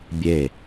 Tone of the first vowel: falling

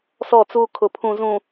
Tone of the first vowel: falling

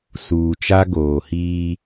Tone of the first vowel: low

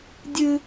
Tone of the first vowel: high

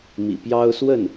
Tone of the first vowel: low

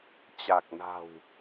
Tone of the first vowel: low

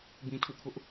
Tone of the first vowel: low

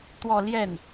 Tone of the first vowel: falling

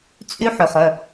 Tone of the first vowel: high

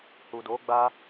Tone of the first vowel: low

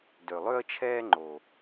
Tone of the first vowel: low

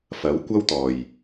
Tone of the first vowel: rising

